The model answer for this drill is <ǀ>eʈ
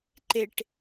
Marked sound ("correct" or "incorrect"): incorrect